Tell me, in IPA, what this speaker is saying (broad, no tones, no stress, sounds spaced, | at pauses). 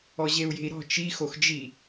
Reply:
ɔ ʑ e u̯ j e̤ i̯ ɾ ɔ̤ t͡ʃ i x o x d͡ʒ i